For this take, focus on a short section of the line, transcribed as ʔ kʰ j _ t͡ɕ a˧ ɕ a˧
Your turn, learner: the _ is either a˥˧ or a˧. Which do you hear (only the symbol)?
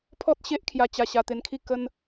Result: a˧